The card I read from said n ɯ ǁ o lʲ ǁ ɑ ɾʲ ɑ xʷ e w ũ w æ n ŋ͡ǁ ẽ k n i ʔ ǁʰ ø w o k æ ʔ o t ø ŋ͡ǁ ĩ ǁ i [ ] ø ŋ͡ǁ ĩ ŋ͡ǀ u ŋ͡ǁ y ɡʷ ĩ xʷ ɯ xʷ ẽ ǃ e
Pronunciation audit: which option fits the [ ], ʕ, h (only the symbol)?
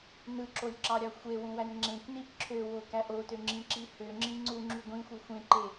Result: h